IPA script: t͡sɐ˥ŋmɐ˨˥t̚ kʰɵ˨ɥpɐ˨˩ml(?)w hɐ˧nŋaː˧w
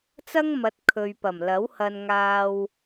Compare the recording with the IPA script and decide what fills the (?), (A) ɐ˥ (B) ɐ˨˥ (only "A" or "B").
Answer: B